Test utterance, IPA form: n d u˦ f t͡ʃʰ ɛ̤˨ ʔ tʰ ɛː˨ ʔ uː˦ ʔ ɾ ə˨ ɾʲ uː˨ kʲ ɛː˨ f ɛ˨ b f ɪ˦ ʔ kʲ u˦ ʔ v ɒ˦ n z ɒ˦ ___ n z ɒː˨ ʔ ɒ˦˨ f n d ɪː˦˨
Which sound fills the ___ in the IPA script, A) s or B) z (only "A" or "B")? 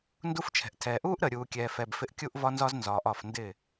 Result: B